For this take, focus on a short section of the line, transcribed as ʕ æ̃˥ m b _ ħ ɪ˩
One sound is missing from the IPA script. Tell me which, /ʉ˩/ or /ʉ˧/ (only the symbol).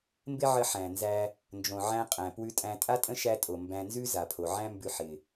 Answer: ʉ˧